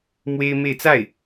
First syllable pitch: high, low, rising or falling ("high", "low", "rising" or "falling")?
high